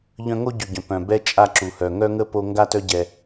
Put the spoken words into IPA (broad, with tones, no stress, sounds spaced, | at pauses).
ʎ œ̃˦ ŋ o˦ ɟ y˨ ɟ œ̃˨ p œ̃˨ b ɛ˧ t͡ʃʼ a˦˨ ǁ u˨ h œ˨ ŋ œ˦ ŋ ə˦ p o˧ ŋ ɡ a˦ t œ˦ ɟ ɛ˧